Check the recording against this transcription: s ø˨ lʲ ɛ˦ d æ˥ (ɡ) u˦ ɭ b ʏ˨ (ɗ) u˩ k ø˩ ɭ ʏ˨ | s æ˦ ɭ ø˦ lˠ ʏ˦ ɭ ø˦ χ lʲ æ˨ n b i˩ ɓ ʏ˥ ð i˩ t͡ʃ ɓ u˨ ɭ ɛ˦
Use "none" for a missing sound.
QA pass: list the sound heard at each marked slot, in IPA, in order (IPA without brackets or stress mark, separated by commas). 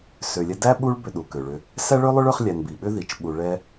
ɓ, ɗ